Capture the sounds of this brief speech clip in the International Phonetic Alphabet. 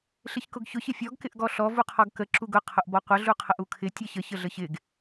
ɬ ɪ ç k ʊ ɡ ç ʊ ç ɪ fʲ ɔ ɡ k ɪ ʔ ɡ ɔ ɬ ɔ v u qʰ ɔ ɡ k ə ǁ u ɡ ʊ qʰ ʊ ʔ b ɔ qʷ ə ɮ u qʰ ə ʔ u kʰ ɪ tʲ ʌ ç ə ç ə ɮ ə ç ɪ ɡ

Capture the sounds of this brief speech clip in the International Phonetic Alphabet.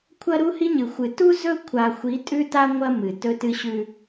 kʷʰ ɐ˦ ɾ u˦ h i˦ ɲ ɨ˨ xʷ ɨ˨ t u˦ z ɵ˦ kʷʰ a˨ xʷ i˨˦ tʼ ʉ˦ t a˦ ŋʷ ɐ˦ m ɨ˨ t ɵ˦ t ɨ˦ ɕ ʉ˦

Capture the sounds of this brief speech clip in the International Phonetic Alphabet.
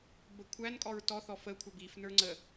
b ə kʷʰ æ n kʼ ɔ ɹ t ɔ θ ɔ f ə kʷʰ ʌ b i f n ə˞ ŋ͡ǀ ə

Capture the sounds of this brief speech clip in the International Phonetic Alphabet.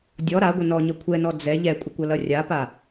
dʲ ɔ ɾ a ɡʷ ə n ɔ ɲ ʌ kʷʰ ɛ n ɔ d͡z ɛ ʎ ɛ kʷʼ ɪ kʷ ʌ l ʌ rʲ a p a

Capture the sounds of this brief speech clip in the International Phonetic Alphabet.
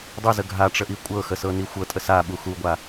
dˤ i z ə ɡʱ a ʈ͡ʂ ə ʔ i kʷʼ ɤ x ə s ɤ n i xʷ ɤ tʼ ə s a ɓ u x u ɡʷ a

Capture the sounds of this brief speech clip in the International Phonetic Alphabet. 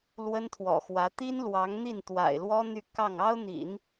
l w ə˥ n t̪ʰ w ɔ̰˨˩ x w ä˧˥ t̪ i˥ n l w ɑ˧˥ ŋ n̪ i˥˩ n t̪ w a̰˨˩ ɪ̯ l w ɔ˥ n̪ y˥˧ k ɑ˥˩ ŋ ɑ˥ ʊ̯ n̪ ḭ˨˩˦ n

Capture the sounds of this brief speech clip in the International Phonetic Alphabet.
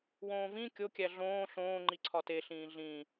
w õː v ĩ kʲ o kʲ æ ɮ õː ɬ õː ŋ͡ǃ i ǀʰ ɒ t e ɬ ĩː ɮ ĩ

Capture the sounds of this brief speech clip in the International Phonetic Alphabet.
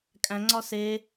kʼ æ̃ ŋ͡ǀ ɒ s e

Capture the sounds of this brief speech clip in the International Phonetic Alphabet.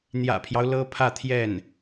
n̪ j ä̰˨˩ pʰ j ɑ˦ ʊ̯ l ɤ˥ pʰ ä˥˧ t̪ʰ j ɛ˥˩ n

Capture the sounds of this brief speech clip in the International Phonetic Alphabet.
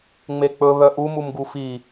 ŋ͡m e k͡p ɵ β œ ʔ u m u m ɡ u f i

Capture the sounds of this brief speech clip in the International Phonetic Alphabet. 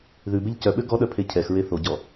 ð ʉ b e ʎ c œ ɓ ø ɡ ɔ ɗ œ pʰ e cʰ ɛ x ɹ e θ o ɟ ɔ

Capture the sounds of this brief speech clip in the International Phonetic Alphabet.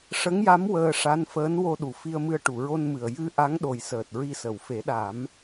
ʂ ə˧˥ ŋ j a˧˥ m w əː˧ ʂ a˧˥ n f əː˧˥ n w o˧ ɗ u˨˩˨ f i˧ ə̯ m ɨ˧ ə̯ ʈ u˨˩˨ ɹ o˧ n m ɨ˨˩ ə̯ j ɨ˧ ʔ a˧˥ ŋ ɗ o˨˩ j s əː˨˩ t̚ ɹ i˧ s ə˨˩˨ w f e˨˩˦ ɗ a˨˩˦ m

